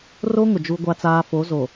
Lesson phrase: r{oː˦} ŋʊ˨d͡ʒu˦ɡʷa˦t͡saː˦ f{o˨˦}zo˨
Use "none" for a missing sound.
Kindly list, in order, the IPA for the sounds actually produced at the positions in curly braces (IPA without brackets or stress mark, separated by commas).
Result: o˦, o˨˦